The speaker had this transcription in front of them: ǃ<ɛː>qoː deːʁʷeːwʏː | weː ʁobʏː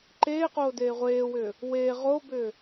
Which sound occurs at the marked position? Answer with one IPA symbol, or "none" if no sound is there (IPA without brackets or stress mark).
eː